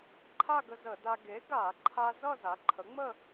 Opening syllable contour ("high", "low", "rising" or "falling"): falling